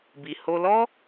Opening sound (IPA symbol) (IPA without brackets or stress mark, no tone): b